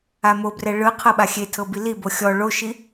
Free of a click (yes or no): yes